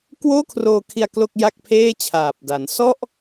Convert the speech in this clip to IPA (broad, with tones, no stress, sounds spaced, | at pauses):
k w oː˥˩ kʰ r oː˧ kʰ i˧ a̯ k l o˥˩ k̚ j a˥˩ k̚ pʰ eː˥˩ t͡ɕʰ aː˨˩ p̚ d a˩˦ n s ɔ˥˩ ʔ